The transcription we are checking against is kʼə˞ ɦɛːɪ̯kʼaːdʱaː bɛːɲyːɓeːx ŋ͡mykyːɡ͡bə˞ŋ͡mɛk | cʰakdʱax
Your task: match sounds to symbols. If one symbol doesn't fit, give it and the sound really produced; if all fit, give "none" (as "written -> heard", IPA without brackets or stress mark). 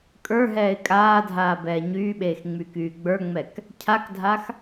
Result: none